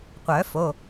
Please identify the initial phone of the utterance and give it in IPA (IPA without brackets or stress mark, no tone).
qʷ